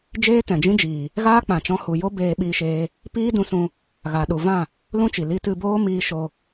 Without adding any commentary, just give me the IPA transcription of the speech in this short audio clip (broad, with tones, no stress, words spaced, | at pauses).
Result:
d͡ʒeː˦tɛ̃˨d͡ʒĩ˦d͡ʒiː˨ | ɣaː˦k͡pã˨t͡ʃɔ̃˧hu˨ jo˦ beː˧ɓiː˧ʃeː˧ | piː˦dũ˧sũ˧ | ɣa˨ ɗu˨ vã˦˨ | lũ˦t͡ʃi˨ li˧ tɨ˧boː˦miː˧ ʃo˧